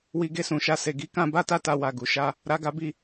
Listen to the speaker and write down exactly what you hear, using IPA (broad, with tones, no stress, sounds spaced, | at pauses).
w i˧ ɡ e˧ s ũ˨ ʃ a˧ s e˨ ɡ i˨˦ k ã˧ b a˦ t a˦˨ t a˧ w a˨ ɡ u˨ ʃ a˧ | ɾ a˧ ɡ a˧ b i˧